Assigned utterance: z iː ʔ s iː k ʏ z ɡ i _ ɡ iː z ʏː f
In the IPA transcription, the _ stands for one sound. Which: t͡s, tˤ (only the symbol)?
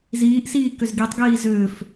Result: tˤ